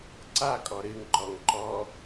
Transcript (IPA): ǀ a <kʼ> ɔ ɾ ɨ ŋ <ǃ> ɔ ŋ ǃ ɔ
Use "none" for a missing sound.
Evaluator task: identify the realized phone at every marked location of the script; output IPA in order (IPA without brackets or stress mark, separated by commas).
kʼ, ǃ